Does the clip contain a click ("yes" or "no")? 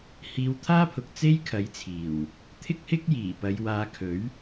no